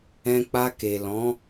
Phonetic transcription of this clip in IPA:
ɛ̃˧k͡pa˧ke˨ lɔ̃˨˦

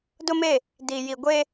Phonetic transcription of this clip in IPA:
dʊ˦me˦˨ | di˨ji˨ɡʷe˦

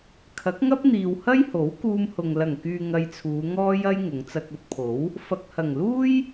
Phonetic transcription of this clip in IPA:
kʰɐ˨˥k̚ŋɐ˥p̚n̪iː˨w hɐ˥jho˨˥wkuː˧mhʊ˨ŋ lɐ˨˩ŋkyː˨ ŋɐ˧jt͡sʰuː˨˧ ŋɔː˥jɐ˥j ŋʊ˨˧ŋt͡sɐ˧k̚ɵ˨˥t̚pʰo˨˥w | fɐ˨k̚hɐ˨˩ŋluː˥j

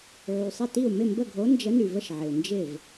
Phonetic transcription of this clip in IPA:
ʕy˩sˤɪ˥˩ti˥˩u̯ mɪ˥˩mbə˥˩ɡʱo˨˥ nd͡ʒə˨˥ny˩və˥˩ʃ ʕɪ˩u̯nd͡ʒɪ˥˩v

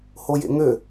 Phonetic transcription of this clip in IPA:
hojḛŋø

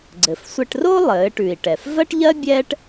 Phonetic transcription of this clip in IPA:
ɡ͡ǀɘ˩fsʷɘ˧ʈro˥lˠɘː˩˧ ʈʉ˩i̯ʈɛ˩f vɜ˥ʈʎɜ˥ bʲɛː˥ʈ

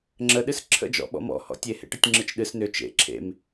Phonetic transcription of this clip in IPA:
ŋ͡ǁəɗɨs ǁʰə̰d͡ʒɔ̰ɓɔ̰ mɔ̰hɔ̰ tʲehḛʈətʲŋ͡ǁɨt͡ʃ ɗɨs nʏ t͡ʃḛ ǁʰḛm

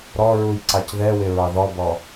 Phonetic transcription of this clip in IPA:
ɾɔɹuj ǀɑcðɛwɪ ɹɑðɔbɔ

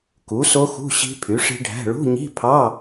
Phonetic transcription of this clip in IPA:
ku˩˥so˦˥xṳ˧˥˧ ɕi̤˦˥pʰy˩˥ʂi̤˦˥ɖʱæ̤˧˥˧ ɭṳ˧˥˧ɲi̤˧˥˧ pʰɑ˧˥˧

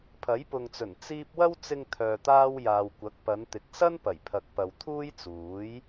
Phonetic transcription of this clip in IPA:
pʰɐ˨˥jpʊ˨ŋt͡sɵ˨˩n t͡siː˥p̚ wɐ˥wt͡sɪ˧ŋ t̪ʰœː˨t̪aː˥w jaː˨wkʷɐ˨˥k̚pɐ˨˧nt̪ɪ˨˥k̚ sɐ˥n pɐ˨˩jpʰɐ˨k̚pɐ˨w t̪ʰuː˥jt͡suː˨˥j

